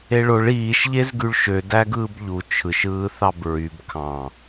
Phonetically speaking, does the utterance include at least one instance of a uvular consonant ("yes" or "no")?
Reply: no